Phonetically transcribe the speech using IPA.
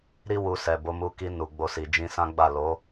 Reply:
ɾi˦wu˧sɛ˨ bo˨˦mu˧ ki˧nu˨ ɡ͡bo˧si˨d͡ʒĩ˧ sã˦ɡ͡ba˦˨ lo˨˦

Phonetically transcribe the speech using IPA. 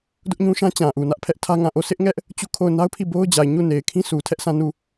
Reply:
dʊ˦ʔɲũ˦ ʃã˦ t͡ɕã˨ʔu˨nä˦ʔ pʰɛ˦ʔ tʰä˦ŋã˦˨ ʔo˦˨sɪ˦ʔŋɛ˦ʔ | t͡ɕu˦˨kʰo˦˨ʊ̯ na˦ʊ̯pʰi˦˨ bo˦ʊ̯d͡ʑa˨ɪ̯ ɲu˦˨ne˨ɪ̯kʰĩ˦ sʰu˨ tʰɛ˦ʔsã˦˨nu˦˨

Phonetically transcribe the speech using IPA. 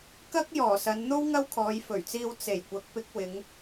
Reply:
kɐ˥k̚ jɔː˨˩sɐ˨˧nn̪o˥w ŋɐ˥wkʰɔː˨˧jfɵ˨˩ɥt͡siː˧w t͡se˨˩jkʷɐ˨k̚ pɪ˧k̚wɪ˨˧ŋ

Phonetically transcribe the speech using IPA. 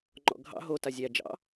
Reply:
ŋ͡ǃɔ̰ɡʱɑ̰ ɦo tazʲæ d͡ʒɑ̰

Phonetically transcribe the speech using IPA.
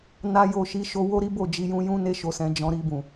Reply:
na˦jo˦˨ ʃi˨˦ʃo˧ wo˦ɾi˦ bo˦˨d͡ʒi˧jũ˧jũ˦ ne˦ʃo˧sɛ̃˧ d͡ʒɔ̃˧ɾi˧bũ˨

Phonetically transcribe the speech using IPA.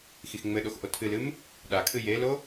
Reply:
xixŋ͡mɘɗox ʔotʰɨlɨm | ɗakʰɨ jelo

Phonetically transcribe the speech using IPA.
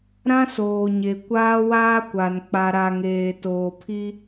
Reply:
ɾã˦soː˨ɲe˨ kʷaː˦waː˦kʷa˨n k͡pa˨ɾa˨ŋeː˨ toː˨pʰi˦

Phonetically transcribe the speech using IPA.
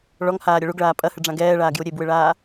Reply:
ɭɔŋhaːɾʲɐ ɭuɡɭaː pʼɐhɨɖ͡ʐã ɡɛːɭaːɡju ɾʲebwɨɭaː

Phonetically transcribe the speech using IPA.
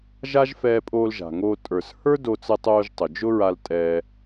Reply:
ʒa˥ʒ fɛː˧pʼoː˧lʒa̤˩ŋoː˧ tʼə˞˩s hə˞˥ do˧t͡sə˧tˤoː˧ʒtˤʊ˩ d͡ʒʊ˥ɹa˧l tʼɛː˧

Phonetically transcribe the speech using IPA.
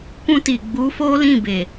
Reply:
kũ˧ti˨ɡ͡bu˨˦ fo˦lĩ˦˨ be˨

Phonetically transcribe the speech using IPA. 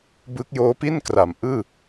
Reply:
bɯ˦˥k̚joː˦˥pi˥˩nkra˩˦m ʔɯː˥˩

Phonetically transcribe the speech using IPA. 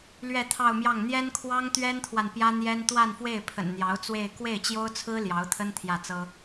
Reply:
lɥɛ˥˧t̪ʰɑ˥˧ʊ̯mjɑ˥˩ŋ n̪jɛ˥nkʰwɑ˥ŋt̪ɥɛ˥nt̪ʰwa˨n pjä˥n̪jɛ˥n t̪wa˥˧nfwe˥˩ɪ̯pʰə̰˨˩n n̪jɑ˧˥ʊ̯t͡swe˥˧ɪ̯ kwe˥˩ɪ̯t͡ɕjo˥ʊ̯t͡sʰɹ̩˥ ljɑ˧˥ʊ̯t̪ʰə˥n t̪ʰjä˥˩t͡sɤ˥

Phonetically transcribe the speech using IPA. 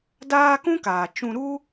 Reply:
daː˦ kũ˦kaː˨t͡ʃũ˧ɾu˦

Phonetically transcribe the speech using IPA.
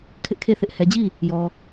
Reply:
kʰɪ˦ʔkʰe˦˨θɪ˦ʔ hɛ˨d͡ʑi˦˨ | jɔ˨

